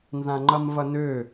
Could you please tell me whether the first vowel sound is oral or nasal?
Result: nasal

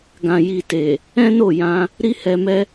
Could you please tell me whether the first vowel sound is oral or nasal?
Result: nasal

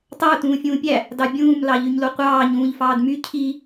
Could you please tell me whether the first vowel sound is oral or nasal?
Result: oral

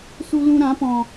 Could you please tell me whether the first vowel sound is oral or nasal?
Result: oral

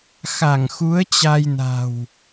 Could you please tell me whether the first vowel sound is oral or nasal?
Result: oral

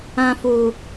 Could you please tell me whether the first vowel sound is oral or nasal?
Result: nasal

